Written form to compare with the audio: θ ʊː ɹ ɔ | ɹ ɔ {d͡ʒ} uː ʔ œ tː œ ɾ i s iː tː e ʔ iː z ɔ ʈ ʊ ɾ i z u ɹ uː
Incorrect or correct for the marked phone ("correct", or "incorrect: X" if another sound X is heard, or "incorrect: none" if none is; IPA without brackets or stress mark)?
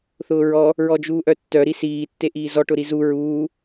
correct